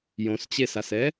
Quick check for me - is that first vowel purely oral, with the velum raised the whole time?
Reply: no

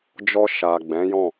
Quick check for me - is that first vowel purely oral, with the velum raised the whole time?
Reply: yes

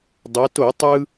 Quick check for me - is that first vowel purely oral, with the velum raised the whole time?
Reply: yes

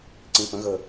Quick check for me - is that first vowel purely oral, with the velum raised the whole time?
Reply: no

